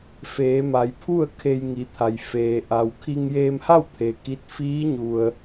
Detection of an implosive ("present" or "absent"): absent